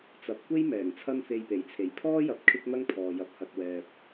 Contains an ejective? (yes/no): no